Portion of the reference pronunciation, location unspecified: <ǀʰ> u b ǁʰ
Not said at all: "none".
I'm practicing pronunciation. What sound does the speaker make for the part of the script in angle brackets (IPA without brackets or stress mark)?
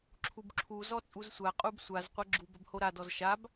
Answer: ǁʰ